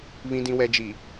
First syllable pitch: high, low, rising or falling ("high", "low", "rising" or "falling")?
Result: low